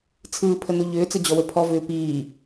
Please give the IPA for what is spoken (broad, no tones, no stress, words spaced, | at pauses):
t͡sʰɯːpʰənu ʎʏːt͡səd͡ʑɔwə pʰɔvʏː piː